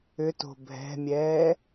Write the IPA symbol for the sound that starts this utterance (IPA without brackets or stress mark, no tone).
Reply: ʏ